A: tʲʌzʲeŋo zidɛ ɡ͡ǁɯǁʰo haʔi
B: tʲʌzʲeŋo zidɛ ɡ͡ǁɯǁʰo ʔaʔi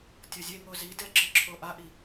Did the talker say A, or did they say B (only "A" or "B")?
B